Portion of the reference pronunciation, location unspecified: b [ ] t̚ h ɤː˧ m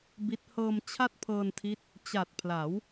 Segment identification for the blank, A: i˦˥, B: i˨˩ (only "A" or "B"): A